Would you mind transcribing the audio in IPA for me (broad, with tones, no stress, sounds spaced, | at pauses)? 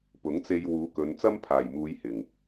p ʊ˨˥ ŋ t͡s e˧ j w uː˨˧ k ɵ˨˧ n t͡s ɐ˥ m pʰ aː˨˩ j m uː˨˧ j h ɪ˨˩ ŋ